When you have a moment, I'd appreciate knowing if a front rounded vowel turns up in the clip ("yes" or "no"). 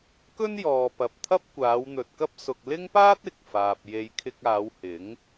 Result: no